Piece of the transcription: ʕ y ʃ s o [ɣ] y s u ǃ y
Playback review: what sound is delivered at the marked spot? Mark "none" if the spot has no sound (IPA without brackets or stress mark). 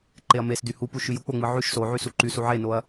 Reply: ʕ